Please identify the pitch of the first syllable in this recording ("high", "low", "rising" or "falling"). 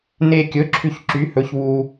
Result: low